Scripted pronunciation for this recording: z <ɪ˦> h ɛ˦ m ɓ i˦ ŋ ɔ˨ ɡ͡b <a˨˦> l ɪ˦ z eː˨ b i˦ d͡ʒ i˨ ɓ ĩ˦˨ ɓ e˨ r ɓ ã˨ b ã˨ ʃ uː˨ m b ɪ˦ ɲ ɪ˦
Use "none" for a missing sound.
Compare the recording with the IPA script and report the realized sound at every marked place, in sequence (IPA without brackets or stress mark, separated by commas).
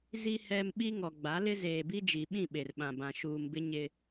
i˦, a˨˦